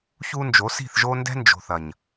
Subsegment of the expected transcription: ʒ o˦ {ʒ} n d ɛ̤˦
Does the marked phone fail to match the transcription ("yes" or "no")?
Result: yes